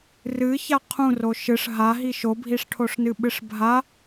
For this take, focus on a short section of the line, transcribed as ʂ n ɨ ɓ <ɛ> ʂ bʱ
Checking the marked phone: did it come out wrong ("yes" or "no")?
yes